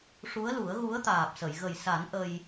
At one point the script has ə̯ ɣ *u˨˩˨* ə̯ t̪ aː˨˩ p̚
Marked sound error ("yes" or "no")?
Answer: yes